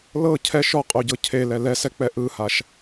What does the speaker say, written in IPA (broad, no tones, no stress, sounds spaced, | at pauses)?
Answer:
l ɤ cʰ ɛ ʃ ɔ qʼ o ɟ ɤ cʰ e l ɛ l ɛ s ɛ k͡p ɛ ʔ ɯ h a ʃ